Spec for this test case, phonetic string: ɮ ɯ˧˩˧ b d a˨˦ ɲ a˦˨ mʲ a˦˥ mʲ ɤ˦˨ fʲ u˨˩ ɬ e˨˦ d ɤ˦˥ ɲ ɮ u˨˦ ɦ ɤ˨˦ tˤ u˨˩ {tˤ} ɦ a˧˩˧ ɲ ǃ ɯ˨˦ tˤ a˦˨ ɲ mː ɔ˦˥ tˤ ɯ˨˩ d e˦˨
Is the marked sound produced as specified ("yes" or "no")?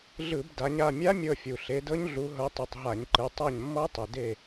yes